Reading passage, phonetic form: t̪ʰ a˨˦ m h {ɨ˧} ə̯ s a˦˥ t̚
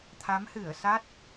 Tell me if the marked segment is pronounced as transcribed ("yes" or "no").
no